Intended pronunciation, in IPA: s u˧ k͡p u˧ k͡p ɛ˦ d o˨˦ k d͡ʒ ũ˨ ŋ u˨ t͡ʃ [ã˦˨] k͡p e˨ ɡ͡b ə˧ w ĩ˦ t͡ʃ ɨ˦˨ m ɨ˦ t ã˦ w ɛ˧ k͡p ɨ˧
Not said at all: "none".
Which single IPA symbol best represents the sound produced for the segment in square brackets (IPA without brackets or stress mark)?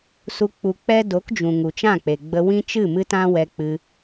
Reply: ã˦˨